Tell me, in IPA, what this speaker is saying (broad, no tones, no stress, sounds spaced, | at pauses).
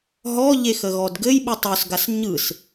ɦ ɔ ʎ e x ə ɣ ɔ d ɡ ɘ j ɓ ɯ tˤ y s ɡ a s ɲ ɯ s